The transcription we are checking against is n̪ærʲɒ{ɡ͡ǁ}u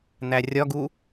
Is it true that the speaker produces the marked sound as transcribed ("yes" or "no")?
no